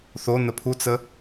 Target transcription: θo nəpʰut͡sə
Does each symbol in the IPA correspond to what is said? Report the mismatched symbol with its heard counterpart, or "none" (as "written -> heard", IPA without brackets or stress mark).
none